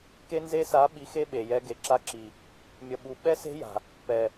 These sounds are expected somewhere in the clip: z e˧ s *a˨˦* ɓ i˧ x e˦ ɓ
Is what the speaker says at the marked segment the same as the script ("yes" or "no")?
yes